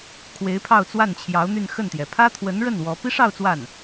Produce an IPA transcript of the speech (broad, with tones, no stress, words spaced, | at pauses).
kʰwe˧˥ɪ̯pʰɑ˥˧ʊ̯t͡swa˥˩nt͡ɕʰjɑ˧˥ʊ̯ n̪y˥˧nxə˥˩nt̪jɛ˩ pʰä˥t̪ʰwə˧˥nɻə˥˩n wɔ˧˥ pi˥ʂɑ˥˧ʊ̯ t͡swa˥˩n